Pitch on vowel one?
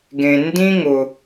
low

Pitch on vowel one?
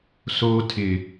high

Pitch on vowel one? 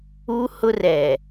high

